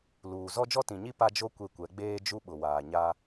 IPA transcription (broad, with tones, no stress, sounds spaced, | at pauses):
l uː˨ z ɔ˦ d͡ʒ ɔ˦ t ĩ˨ ɲ i˦ p a˦ d͡ʒ o˦ kʷ e˦˨ kʷ ɛ˨˦ ɡ͡b eː˦ d͡ʒ u˦ ɓ ʊ˨ w aː˨ ɲ a˦